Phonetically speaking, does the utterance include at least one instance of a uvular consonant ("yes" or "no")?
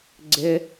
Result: no